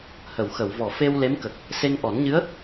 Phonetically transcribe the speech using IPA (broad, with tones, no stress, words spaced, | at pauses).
hə˨˩˨wxə˨˩˨w vɔ˨˩˨fe˧w le˧˥mkə˨˩k̚ | se˧ŋʔɔ˨˩˦nɲɨ˧˥ə̯